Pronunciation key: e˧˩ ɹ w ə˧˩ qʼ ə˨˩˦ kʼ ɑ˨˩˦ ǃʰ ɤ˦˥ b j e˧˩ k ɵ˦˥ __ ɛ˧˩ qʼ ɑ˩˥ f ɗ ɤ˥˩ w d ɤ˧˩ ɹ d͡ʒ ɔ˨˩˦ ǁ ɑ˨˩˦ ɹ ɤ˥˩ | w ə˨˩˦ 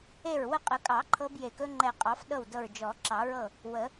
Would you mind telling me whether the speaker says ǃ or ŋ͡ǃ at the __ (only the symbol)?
ŋ͡ǃ